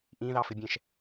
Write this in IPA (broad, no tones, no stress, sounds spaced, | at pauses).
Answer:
ʔ ĩ ð ɑ f ɪ bʲ ɛ̃ ʃ